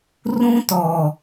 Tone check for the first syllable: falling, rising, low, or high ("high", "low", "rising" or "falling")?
high